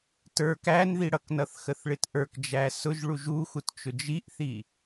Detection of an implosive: absent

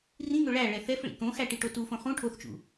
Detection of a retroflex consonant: present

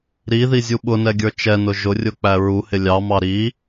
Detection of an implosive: present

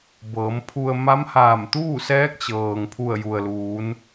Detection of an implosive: absent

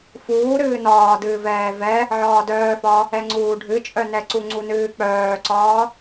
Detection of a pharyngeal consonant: present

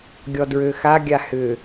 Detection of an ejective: absent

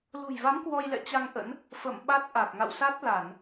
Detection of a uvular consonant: absent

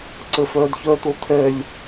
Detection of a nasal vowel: absent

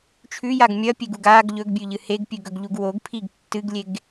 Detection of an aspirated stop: present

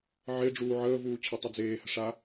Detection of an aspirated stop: present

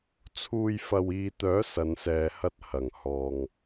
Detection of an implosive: absent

